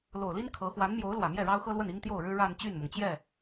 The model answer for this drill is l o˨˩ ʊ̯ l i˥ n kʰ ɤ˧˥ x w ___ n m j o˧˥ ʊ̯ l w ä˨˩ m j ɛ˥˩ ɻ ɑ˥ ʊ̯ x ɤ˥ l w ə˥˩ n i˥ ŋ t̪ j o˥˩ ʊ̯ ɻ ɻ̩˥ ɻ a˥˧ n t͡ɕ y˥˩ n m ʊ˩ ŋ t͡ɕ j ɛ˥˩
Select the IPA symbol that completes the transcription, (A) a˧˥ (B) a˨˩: A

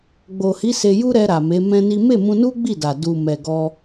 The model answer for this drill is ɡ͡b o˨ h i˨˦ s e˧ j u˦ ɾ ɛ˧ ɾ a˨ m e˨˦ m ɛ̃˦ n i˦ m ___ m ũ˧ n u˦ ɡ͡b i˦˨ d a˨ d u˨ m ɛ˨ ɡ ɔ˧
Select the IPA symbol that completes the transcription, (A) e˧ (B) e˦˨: B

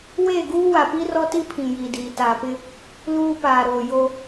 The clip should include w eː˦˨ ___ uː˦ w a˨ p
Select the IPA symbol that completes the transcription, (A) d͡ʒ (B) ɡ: B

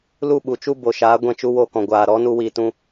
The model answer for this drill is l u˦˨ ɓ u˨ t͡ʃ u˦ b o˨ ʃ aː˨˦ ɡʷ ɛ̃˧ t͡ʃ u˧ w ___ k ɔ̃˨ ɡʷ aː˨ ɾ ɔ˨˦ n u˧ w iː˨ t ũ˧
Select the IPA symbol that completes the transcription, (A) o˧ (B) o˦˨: B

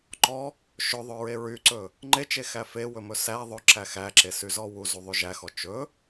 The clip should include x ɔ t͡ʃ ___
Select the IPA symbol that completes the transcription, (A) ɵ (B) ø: A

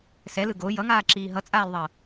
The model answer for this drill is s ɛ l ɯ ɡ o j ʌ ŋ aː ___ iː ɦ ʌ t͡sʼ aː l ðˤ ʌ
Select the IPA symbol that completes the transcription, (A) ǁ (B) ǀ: A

